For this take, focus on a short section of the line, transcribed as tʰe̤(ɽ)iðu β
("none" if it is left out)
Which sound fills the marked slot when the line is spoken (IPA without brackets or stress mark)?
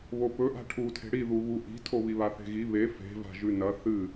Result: ɽ